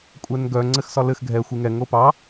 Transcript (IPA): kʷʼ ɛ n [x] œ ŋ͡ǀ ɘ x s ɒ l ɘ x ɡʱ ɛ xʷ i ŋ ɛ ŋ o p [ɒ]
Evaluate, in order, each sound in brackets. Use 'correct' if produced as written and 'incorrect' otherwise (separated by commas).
incorrect, incorrect